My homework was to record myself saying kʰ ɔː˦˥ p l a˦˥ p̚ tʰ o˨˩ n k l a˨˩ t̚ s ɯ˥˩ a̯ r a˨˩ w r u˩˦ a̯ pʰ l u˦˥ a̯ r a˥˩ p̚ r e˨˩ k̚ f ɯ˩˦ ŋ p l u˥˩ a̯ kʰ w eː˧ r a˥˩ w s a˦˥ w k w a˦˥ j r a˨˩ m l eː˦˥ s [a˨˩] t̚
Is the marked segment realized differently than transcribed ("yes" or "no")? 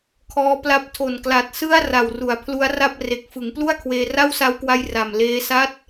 yes